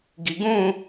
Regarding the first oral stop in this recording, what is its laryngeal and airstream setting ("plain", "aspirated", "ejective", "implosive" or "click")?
plain